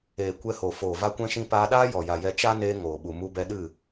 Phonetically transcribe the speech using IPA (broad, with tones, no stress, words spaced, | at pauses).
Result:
eː˨kʷɛ˧ho˨ foː˨va˧kʷɛ̃˧ʃĩ˧ paː˧ɗaː˦ jɔ˨ja˨jɛ˧ t͡ʃa˦neː˧ ŋoː˨ɓu˨ mu˧bɛ˧ɗɨ˦˨